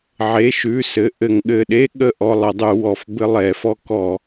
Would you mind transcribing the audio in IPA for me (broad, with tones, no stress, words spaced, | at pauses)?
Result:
ʕe˩˧˩ʃʉ˩˧˩ sɘ˩˧˩ ʔɘ˧˩˧ŋɠɘ˩˧˩ɗe˥ ɠə˥ ʔɔ˩˧˩lˠə˧˩˧dˤʉ˧˩˧ wɔ˩˧˩f bɘ˥lˠɛ˧˩˧fɔ˥ kɔ˧˩˧